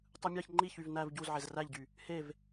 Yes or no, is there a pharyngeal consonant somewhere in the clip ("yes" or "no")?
yes